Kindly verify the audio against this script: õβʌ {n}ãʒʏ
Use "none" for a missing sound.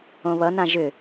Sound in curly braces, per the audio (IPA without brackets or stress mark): n